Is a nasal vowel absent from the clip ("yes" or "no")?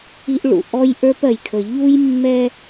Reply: yes